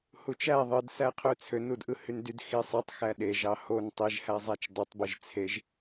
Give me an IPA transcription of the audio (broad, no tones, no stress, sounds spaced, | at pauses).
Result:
h u t͡ʃ æ ðˤ ɯ d s æ qʰ ø t͡sʰ ø n u d ʔ ɯ h y n d y d x i sˤ ɯ tˤ x æ ɗ e ʒ ɑ h o n tˤ i ʒ h æ zˤ æ t͡ʃ dˤ e tˤ b i ʒ t͡sʰ e ʒ